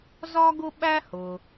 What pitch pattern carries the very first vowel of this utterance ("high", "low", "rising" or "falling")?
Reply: high